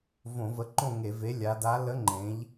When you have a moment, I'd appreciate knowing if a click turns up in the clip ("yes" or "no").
yes